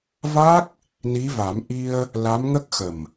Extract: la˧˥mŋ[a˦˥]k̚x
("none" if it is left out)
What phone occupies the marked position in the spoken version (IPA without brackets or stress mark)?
ə˦˥